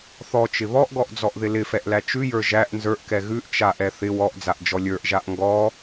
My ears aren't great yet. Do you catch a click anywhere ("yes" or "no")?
no